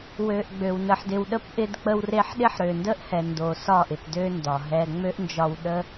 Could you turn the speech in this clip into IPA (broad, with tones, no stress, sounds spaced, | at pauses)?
w ø˨ ʔ ɡ͡b ø˨ w n ə˨ ħ d ɪ˨ w ɗ ə˧ p ʔ ɪ˧ d k͡p ə˧ w r e˧ ħ ɗ ɪ˦ ħ ɾ ø˨ n d ə˦ ʔ h ɛ˨ n d o˨ s ɒ˦˨ ʔ ɪ˨ p d ø˦ n d ɒ˨ ɦ ɛ˧ ŋ͡m ø˦ ʔ n d͡ʒ ɒ˧ w ɗ ə˦